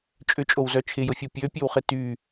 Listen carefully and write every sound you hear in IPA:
t͡ʃʼ ʏ t͡ʃʼ o w z œ t͡ʃʰ ɪ j ʊ fʲ o pʲ ø pʲ ø w χ ɪ t y

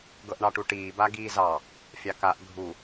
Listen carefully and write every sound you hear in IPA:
ɡ ɤ ʔ ɳ ɑ ʈ u ʈ iː b a ɡ iː z ɑ | fʲ ɑ k a ʔ ɡʱ u

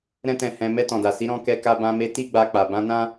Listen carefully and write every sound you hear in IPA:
ɾ ɛ̃˦ t ɛ̃˧ h ɛ̃˧ m ɛ˧ t ɔ̃˨ d a˨ s i˨˦ ɾ ɔ̃˧ k ɛ˧ k a˧ b ã˧ m e˧ t i˦ ɡ͡b a˧ k͡p a˨ b ã˧ n ã˦

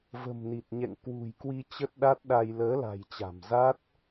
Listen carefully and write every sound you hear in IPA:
v ə̤˨˩ m n i˨˩ t̚ ɲ ɛ̰˧˨ ŋ k w ṳ˨˩ j k w i˧ t͡ɕ ə˦˥ t̚ ɗ a˦˥ t̚ ɗ a˧ j l əː˨˦ l a̤˨˩ j t͡ɕ a̤˨˩ m z a˦˥ t̚

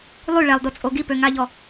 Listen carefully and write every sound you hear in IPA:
lˠ y ɭ ɛ lˠ d o t͡sʼ o ɡ i p ø ŋ a ʎ ɔ

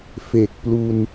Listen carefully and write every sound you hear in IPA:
f e˨˩ k̚ p l u˧ n

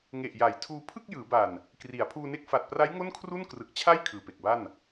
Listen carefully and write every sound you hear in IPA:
ŋ e˨˩ ʔ j a˩˦ j tʰ uː˧ pʰ ɯ˥˩ k̚ j ɯː˩˦ b a˨˩ n | k r i˩˦ a̯ pʰ uː˧ n e˦˥ k̚ f a˨˩ t̚ p r a˦˥ j ŋ o˥˩ n kʰ r u˥˩ n k r ɯ˨˩ k̚ t͡ɕʰ a˥˩ j kʰ ɯː˨˩ p e˨˩ k̚ b a˥˩ n

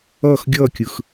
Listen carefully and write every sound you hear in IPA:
ʌː˥˩ x ɡʲ ʌː˥˩ kʲ ɯ˩ x

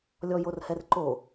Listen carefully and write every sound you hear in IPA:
lʲ ɔ j o r h ɛ r ǃ o

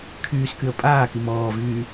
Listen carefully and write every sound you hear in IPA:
kʰ yː s k y ə̯ pʼ aː k i m ɔː v yː

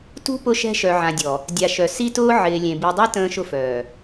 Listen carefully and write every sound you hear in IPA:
t ṳ˦ p ʊ˦ ʃ ɛ̤˦ ʃ œ˨ ʕ ã˨ dʲ ɔ˨ | dʲ a˨ ʃ œ˨ s i˦ t ʊː˦ ʕ ɪː˨ lʲ ẽ˨ b i˨ dˤ ɛ˦ t ə̃ː˦ ʃ ʊ˦ f œː˨

